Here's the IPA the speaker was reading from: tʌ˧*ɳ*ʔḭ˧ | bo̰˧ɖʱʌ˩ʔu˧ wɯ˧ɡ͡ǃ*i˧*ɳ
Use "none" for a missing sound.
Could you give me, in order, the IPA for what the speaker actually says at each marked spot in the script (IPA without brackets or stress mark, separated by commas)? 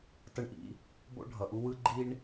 ɳ, i˧